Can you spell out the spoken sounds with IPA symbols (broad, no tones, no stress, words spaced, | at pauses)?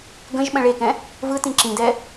ɡə̃ʒɓə̃ ɭekɛ̃ | vɯ tĩǁĩdɛ